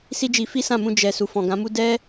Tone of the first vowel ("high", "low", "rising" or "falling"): high